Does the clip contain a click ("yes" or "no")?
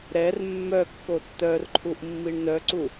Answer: yes